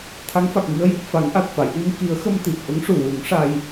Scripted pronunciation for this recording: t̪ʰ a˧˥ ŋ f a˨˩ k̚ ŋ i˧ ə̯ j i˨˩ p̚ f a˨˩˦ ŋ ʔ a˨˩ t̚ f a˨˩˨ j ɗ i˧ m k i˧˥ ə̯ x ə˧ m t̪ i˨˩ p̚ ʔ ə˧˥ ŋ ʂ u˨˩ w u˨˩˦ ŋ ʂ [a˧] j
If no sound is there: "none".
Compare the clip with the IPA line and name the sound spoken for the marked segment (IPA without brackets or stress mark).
a˧